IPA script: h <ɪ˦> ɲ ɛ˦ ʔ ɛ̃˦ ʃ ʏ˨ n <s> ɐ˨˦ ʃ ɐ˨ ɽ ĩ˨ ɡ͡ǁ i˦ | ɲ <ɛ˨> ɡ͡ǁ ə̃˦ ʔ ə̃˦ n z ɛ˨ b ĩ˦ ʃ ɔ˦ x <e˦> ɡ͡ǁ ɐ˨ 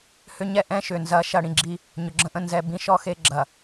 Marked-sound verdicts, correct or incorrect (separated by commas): incorrect, incorrect, incorrect, correct